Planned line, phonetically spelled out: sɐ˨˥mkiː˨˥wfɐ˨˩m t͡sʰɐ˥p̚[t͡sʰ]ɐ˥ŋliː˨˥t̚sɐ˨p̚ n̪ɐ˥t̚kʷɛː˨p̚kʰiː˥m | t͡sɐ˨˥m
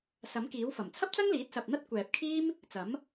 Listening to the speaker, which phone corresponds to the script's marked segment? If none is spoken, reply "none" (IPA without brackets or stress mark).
t͡s